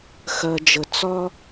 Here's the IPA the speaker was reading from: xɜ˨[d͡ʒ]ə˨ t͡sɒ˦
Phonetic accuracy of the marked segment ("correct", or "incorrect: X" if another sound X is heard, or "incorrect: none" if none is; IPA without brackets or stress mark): correct